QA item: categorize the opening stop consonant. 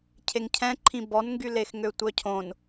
aspirated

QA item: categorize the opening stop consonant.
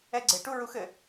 click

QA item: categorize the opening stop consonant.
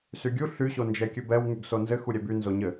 plain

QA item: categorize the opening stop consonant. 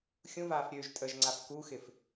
ejective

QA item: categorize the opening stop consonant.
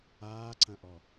click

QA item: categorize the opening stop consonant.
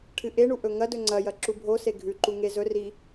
aspirated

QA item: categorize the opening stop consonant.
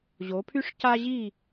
aspirated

